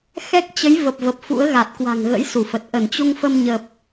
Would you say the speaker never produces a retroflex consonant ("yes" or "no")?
yes